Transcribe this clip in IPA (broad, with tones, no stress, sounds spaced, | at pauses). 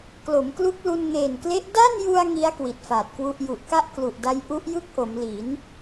k l o˩˦ m k l u˦˥ k̚ l u˧ n ŋ eː˨˩ n k l e˦˥ ʔ d a˥˩ n j u˧ a̯ ŋ i˦˥ a̯ k w i˨˩ t̚ f aː˨˩ t̚ k w u˥˩ ʔ j u˨˩ ʔ k a˥˩ ʔ k l u˨˩ ʔ d a˦˥ j ʔ u˦˥ ʔ j ɯ˥˩ k̚ ʔ o˩˦ m l i˩˦ n